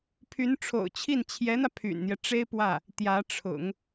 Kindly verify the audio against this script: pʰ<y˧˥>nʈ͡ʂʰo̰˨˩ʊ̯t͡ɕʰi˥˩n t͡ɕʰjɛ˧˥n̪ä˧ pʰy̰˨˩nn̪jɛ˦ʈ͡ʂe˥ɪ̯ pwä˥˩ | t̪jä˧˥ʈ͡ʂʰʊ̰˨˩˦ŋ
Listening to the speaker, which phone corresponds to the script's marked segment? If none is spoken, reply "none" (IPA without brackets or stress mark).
y˧˥